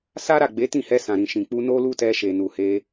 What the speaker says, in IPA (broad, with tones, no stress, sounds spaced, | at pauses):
s a˦ ɾ a˦˨ ɡ͡b e˨˦ t ĩ˦˨ h ɛ˧ s ã˨ ɾ ĩ˨ ʃ ĩ˨ k͡p u˧ n o˦ l u˦ t ɛ˧ ʃ e˨ n u˨ h e˧